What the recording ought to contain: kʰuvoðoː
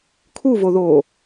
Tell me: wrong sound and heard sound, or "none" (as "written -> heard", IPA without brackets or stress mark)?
none